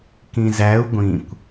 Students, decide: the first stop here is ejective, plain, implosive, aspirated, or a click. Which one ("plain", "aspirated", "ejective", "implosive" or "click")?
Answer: plain